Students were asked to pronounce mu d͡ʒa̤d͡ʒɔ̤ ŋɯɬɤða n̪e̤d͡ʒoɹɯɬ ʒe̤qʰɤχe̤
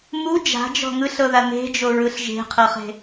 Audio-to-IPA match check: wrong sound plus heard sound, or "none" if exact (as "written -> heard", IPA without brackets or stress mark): none